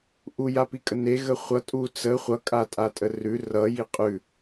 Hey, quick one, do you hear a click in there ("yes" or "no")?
no